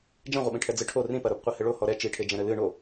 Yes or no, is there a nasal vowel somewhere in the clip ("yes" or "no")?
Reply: yes